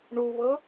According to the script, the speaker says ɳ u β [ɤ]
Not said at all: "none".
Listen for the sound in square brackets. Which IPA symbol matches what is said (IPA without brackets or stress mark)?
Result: ɤ